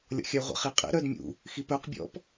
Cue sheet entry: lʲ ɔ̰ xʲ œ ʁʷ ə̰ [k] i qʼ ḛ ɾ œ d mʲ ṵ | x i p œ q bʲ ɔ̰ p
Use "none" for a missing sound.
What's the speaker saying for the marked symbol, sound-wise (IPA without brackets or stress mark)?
χ